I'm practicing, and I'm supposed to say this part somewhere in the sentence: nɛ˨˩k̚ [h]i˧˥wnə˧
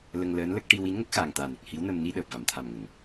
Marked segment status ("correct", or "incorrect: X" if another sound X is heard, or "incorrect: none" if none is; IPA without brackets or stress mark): correct